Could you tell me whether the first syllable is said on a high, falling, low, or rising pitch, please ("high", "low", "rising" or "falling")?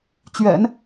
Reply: low